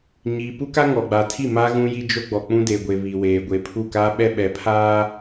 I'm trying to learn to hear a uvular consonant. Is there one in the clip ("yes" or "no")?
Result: no